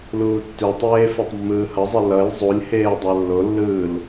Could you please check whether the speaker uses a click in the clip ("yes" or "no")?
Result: no